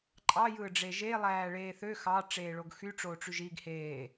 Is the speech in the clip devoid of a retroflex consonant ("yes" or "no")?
no